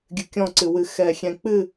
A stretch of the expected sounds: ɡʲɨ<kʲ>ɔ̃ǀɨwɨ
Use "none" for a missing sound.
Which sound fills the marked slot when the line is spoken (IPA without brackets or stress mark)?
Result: kʲ